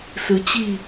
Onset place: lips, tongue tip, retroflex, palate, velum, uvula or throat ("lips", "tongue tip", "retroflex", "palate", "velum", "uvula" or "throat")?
tongue tip